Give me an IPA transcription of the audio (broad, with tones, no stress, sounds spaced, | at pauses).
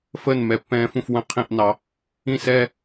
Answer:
f əː˥˩ n m ɛ˧˩˧ pː ɛ̃ː˧ f ũ˥˩ f w ə̃˥˩ qʰ ĩ˥˩ ʔ n ɑ˩˧ | ĩ˥˩ s ɛː˥˧